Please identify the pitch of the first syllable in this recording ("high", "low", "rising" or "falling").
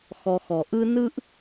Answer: low